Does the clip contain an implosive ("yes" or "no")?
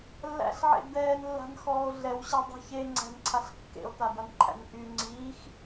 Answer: no